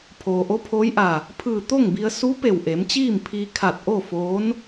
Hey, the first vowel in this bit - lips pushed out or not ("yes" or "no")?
yes